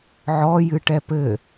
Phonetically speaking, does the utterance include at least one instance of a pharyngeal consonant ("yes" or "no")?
yes